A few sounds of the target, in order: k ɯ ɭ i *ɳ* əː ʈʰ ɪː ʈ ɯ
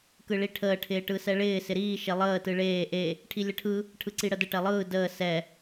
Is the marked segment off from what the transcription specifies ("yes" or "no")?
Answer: yes